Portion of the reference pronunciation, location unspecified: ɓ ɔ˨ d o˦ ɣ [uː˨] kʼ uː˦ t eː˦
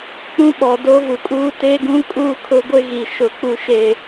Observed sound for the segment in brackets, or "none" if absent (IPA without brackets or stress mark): u˨